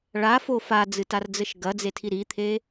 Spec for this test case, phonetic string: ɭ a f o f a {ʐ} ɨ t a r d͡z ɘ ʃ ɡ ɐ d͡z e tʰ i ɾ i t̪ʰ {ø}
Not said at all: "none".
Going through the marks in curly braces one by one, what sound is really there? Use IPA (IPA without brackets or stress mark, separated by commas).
d͡z, e